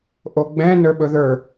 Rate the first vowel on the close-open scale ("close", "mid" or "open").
mid